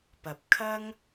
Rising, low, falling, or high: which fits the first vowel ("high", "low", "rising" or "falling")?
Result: low